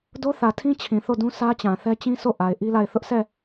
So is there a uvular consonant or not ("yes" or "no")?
no